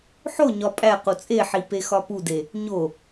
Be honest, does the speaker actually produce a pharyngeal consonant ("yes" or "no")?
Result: yes